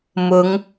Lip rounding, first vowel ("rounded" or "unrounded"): rounded